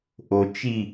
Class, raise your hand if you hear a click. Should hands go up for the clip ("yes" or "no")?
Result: no